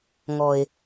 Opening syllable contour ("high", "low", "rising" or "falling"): low